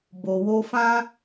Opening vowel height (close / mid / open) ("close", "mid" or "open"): mid